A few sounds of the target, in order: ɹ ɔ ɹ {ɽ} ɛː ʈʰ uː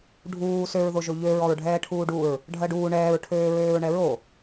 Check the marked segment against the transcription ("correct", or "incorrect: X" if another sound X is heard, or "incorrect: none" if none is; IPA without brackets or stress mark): incorrect: ɖʱ